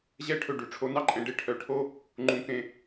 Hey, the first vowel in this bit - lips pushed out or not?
no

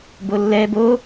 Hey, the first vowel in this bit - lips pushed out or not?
yes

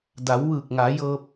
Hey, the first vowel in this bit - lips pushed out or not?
no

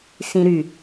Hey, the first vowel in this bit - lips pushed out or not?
no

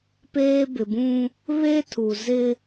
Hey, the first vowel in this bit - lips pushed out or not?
no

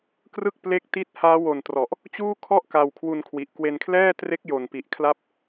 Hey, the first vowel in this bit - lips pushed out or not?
no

